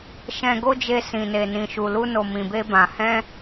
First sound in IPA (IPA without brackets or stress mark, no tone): ʃ